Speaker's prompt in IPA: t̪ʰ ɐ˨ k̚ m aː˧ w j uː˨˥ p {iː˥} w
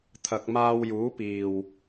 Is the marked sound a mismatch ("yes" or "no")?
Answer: yes